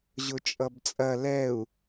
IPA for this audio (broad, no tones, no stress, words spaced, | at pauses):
ʑʊt͡ʃʼʌbt͡sʼɐ lɛu̯